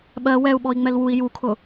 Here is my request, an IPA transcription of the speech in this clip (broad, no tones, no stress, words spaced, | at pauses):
ɓɜ wɛu̯ɓɔi̯ ŋ͡mɛlwui̯ jukʰʊ